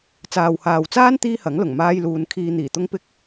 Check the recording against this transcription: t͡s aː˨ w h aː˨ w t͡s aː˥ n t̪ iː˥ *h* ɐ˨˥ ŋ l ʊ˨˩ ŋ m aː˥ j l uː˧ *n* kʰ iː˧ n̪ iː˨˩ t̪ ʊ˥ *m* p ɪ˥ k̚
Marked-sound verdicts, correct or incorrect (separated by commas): correct, correct, incorrect